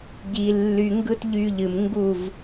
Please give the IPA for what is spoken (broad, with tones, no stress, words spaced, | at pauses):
ɟi˧lːy˧ ŋɡɯ˦tʎy˧ʎɨ˨mŋɡu˦˨v